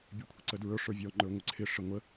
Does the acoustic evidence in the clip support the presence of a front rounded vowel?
no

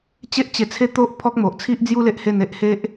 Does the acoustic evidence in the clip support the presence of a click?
no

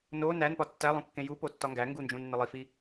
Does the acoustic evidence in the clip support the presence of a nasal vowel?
yes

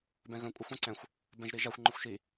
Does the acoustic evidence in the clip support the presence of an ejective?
yes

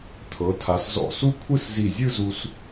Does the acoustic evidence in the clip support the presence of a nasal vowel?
no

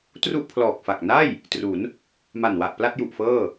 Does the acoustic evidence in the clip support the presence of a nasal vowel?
no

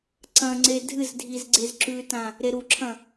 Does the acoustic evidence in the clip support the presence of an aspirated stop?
yes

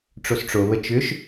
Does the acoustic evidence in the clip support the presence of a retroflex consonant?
yes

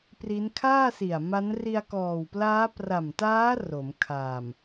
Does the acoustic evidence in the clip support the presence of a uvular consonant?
no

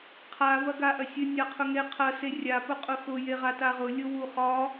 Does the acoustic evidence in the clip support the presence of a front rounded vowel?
no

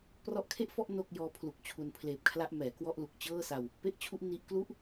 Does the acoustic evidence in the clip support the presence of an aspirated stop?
yes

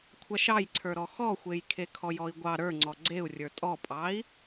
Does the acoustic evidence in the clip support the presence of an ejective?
yes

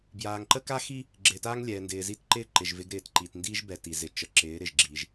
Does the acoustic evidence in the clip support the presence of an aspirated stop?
no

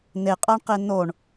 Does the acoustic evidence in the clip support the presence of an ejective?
yes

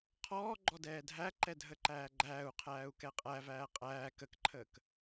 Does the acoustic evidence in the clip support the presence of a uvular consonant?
yes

